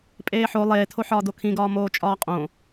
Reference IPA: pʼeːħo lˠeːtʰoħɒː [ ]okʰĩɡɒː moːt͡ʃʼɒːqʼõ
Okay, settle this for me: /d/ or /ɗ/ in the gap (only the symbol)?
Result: d